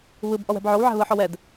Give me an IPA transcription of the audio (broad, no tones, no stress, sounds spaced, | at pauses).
β ɯ b ʔ ɔ w ɛ̤ b ʕ o w ʕ ɛ̤ β ɯ ħ ɔ w ɛ d